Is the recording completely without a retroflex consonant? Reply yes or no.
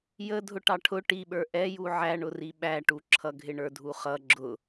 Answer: no